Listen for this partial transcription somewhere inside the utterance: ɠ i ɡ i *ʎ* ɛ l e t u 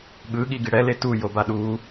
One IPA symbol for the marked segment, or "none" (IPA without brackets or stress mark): ɽ